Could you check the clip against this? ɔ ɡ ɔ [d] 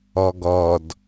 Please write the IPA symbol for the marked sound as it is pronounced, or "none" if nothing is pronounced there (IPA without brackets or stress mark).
d